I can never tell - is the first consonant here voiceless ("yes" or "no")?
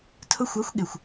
yes